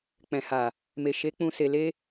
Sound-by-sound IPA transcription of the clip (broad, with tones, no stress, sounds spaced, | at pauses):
k͡p ɛ̃˨ h a˨ | m e˨ ʃ e˨˦ k͡p ũ˧ s e˧ l e˦